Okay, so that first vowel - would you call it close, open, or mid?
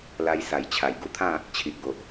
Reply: open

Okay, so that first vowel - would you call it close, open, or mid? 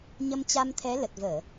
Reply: mid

